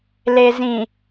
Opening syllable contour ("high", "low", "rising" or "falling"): low